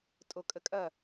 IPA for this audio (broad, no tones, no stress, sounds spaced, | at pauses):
tʼ o kʼ ə kʼ ɐ